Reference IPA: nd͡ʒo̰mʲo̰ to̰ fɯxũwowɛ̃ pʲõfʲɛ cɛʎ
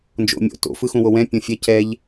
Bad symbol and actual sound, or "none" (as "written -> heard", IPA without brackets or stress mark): none